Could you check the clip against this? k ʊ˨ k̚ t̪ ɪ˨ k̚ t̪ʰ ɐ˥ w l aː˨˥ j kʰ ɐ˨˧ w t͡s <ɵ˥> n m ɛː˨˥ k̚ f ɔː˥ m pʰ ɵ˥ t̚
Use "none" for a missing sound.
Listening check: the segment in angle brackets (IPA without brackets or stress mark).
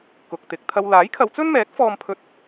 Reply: ɵ˥